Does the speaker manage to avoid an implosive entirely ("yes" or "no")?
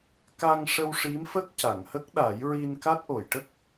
no